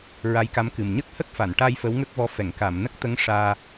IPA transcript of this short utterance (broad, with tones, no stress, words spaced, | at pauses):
ɹa˧˥jka˧˥mkɨ˨˩m ɲə˦˥k̚hə˦˥k̚fa˨˩˨nʈa˧j fə˧˥wŋə˦˥k̚vɔ˧˥ fɛ˨˩˨ŋka˨˩˨mnə˦˥k̚t̪ə˧˥ŋ ʂaː˧